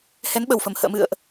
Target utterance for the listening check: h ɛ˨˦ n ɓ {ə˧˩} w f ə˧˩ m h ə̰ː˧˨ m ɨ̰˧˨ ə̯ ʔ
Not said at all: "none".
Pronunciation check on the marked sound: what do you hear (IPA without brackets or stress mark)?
ə˧˩